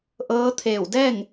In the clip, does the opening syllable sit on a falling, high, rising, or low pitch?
rising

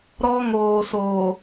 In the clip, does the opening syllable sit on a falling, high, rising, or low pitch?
high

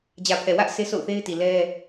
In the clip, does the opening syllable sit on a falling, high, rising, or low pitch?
low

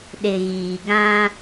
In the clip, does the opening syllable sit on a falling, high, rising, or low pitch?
low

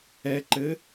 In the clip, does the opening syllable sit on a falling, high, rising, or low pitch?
low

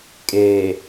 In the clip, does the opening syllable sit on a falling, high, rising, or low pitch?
low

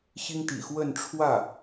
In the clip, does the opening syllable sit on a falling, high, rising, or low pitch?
high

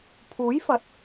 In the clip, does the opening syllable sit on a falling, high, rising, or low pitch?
rising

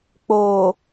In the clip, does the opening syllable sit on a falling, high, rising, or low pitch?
low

